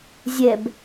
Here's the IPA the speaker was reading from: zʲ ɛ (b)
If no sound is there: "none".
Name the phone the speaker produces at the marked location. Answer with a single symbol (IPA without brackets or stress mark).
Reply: b